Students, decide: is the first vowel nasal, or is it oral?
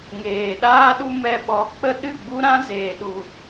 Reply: oral